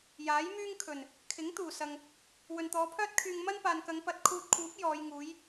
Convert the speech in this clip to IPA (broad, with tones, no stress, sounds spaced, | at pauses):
j aː˨˥ j m yː˥ ŋ kʰ ɵ˨˩ n | kʰ ɪ˨˥ ŋ t̪ uː˨˩ s ɐ˨ ŋ | w ɵ˨ n t̪ ɔː˨˧ pʰ œː˥ t̚ kʰ yː˧ ŋ m ɐ˥ n p aː˨ n k ɐ˨˧ ŋ p ɐ˧ t̚ kʰ uː˧ t̚ kʰ uː˨˥ p̚ j ɔː˨˧ j ŋ uː˨˥ j